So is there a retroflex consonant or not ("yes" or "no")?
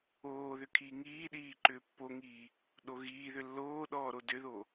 no